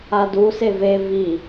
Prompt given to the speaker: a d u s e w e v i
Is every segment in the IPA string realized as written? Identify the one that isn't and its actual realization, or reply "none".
w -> v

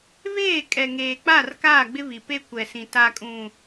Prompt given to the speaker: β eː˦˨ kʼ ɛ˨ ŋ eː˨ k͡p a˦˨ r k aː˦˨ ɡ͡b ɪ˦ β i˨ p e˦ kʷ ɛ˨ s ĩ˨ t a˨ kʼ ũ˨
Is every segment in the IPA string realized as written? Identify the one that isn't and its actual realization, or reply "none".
none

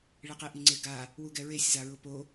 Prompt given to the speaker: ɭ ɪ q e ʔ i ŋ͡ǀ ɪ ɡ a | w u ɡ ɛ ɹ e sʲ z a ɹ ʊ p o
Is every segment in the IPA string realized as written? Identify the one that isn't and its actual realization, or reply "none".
none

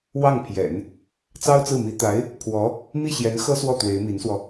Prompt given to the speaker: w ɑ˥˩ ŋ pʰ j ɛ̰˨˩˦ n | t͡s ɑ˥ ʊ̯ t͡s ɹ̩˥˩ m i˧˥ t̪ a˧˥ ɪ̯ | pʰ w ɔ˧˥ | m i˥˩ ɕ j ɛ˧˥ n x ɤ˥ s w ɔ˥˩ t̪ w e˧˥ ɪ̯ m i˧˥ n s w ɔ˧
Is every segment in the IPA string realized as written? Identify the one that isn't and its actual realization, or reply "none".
none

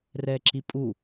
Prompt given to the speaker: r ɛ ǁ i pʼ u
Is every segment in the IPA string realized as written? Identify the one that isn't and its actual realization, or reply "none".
none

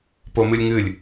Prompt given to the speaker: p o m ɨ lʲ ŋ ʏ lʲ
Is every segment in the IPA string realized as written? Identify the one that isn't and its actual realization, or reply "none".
ʏ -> ɨ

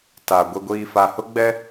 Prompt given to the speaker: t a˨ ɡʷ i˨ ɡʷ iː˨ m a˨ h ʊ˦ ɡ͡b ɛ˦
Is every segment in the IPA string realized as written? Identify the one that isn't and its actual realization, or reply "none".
m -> f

